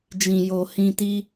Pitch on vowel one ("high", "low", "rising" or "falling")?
low